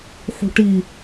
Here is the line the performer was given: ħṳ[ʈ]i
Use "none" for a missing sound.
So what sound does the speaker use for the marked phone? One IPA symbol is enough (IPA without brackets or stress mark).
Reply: ʈ